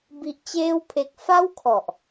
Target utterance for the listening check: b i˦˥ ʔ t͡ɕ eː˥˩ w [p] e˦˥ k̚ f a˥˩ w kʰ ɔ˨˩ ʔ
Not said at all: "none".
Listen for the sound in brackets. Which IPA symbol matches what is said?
pʰ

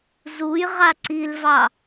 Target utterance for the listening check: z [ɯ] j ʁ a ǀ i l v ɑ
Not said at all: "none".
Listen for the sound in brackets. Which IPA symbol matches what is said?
u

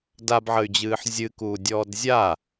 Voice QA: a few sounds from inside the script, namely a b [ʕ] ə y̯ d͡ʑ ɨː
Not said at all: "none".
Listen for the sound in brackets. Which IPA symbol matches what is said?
ʕ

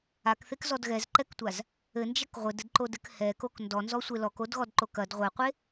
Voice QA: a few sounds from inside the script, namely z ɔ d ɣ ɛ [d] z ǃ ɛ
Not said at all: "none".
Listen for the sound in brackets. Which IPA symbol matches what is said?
none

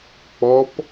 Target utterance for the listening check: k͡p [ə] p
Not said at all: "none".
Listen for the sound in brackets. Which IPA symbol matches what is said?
ɔ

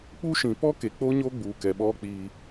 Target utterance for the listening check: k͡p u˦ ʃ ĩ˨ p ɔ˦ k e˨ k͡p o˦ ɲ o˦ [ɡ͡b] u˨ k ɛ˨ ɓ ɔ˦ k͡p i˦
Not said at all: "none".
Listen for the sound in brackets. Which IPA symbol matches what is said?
ɡ͡b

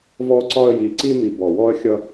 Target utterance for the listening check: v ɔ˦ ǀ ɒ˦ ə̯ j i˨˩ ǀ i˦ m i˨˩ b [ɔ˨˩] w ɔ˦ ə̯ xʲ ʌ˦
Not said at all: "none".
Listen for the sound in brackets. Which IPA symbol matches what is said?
ɔ˨˩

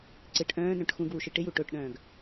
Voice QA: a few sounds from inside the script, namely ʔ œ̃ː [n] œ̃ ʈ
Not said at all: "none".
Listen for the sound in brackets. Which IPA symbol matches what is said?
n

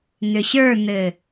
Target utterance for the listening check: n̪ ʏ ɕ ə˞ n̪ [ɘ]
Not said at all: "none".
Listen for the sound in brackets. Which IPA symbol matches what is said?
ɘ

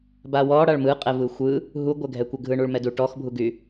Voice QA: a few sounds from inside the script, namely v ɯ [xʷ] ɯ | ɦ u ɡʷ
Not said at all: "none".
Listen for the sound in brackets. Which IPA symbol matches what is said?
xʷ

